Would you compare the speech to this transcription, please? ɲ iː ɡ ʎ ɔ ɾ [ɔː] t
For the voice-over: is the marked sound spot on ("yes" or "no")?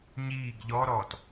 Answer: yes